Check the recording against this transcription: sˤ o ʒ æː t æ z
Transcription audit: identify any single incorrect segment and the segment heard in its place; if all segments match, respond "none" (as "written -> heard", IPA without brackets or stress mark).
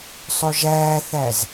t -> θ